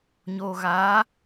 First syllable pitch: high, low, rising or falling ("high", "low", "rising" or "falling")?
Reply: low